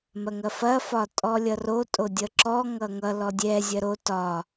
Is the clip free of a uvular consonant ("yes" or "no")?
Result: yes